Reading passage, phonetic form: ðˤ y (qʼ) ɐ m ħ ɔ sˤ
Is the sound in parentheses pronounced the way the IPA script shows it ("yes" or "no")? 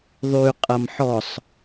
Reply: yes